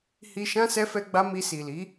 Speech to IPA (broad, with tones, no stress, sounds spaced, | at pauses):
h i˧ ʃ ã˦ s ɛ˦ f ɛ˦ ɡ͡b a˦ m i˧ s i˨ l i˨˦